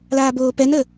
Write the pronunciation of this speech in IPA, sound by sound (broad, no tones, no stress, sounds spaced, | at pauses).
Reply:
l aː b oː p ɛ n ə